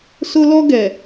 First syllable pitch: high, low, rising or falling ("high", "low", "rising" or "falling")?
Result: high